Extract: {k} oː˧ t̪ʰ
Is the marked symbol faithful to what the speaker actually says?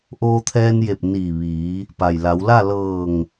no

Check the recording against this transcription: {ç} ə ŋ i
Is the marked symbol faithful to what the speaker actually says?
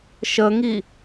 no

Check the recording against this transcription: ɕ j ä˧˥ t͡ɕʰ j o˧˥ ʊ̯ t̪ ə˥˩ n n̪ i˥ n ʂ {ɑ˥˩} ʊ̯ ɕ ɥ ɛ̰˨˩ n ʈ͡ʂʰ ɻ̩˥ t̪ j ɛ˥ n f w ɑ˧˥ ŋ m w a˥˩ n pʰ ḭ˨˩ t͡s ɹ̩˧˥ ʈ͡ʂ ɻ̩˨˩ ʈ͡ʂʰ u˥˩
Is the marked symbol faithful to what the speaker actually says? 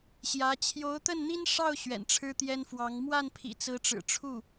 yes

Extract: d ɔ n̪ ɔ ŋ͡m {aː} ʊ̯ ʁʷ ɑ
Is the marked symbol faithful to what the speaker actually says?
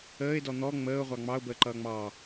no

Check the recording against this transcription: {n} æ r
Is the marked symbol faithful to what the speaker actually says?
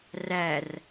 no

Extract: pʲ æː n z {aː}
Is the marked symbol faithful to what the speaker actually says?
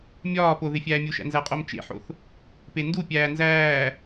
no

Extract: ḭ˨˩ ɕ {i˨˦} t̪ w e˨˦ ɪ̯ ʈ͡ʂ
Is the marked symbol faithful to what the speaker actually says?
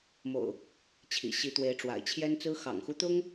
yes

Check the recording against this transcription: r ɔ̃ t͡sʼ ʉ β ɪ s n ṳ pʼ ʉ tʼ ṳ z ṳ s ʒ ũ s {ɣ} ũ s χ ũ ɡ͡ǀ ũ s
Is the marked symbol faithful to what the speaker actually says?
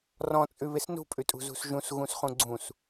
yes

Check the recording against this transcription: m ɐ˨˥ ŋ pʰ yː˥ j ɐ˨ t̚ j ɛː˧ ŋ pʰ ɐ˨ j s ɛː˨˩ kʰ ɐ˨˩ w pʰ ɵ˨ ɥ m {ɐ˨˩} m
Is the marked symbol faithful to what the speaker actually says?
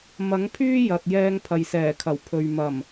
yes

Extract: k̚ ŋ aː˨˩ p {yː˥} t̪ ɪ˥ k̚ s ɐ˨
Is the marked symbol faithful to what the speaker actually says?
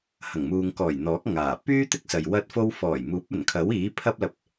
yes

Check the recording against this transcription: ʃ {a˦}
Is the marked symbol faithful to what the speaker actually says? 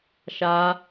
yes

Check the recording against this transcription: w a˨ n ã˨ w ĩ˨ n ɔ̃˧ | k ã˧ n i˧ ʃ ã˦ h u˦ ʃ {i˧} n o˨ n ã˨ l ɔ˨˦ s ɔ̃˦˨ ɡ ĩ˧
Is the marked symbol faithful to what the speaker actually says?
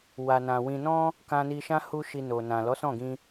yes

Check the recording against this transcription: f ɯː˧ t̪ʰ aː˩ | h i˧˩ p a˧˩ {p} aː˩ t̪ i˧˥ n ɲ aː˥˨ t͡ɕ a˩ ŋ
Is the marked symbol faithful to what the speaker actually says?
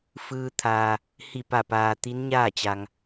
yes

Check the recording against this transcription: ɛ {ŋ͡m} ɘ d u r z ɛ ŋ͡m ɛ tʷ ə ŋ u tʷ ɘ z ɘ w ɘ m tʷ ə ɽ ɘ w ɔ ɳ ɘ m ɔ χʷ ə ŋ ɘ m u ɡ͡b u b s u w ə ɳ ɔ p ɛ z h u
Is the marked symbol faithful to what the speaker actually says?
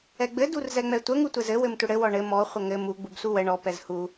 no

